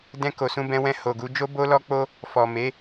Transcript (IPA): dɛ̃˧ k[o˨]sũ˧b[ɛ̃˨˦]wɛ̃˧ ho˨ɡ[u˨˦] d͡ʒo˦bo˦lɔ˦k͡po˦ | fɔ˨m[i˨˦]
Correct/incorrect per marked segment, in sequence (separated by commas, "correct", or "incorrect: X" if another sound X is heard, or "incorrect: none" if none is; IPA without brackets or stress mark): correct, incorrect: ɛ̃˧, correct, incorrect: e˨˦